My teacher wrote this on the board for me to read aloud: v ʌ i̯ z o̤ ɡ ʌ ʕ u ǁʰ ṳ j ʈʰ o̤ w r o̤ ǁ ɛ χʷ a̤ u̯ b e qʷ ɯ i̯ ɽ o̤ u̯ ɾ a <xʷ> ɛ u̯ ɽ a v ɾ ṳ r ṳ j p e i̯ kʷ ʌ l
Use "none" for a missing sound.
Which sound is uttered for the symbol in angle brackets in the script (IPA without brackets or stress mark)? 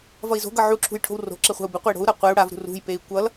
qʷ